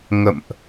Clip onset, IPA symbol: ŋ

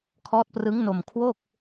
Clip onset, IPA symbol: kʰ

